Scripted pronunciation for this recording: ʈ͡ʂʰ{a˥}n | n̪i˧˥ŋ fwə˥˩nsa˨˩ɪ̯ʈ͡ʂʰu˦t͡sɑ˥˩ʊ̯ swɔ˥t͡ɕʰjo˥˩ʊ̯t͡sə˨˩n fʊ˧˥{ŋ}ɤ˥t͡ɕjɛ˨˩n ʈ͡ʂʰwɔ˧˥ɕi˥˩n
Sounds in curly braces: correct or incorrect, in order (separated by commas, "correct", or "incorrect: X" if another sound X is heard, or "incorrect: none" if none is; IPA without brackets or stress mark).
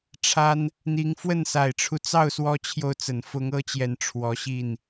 correct, correct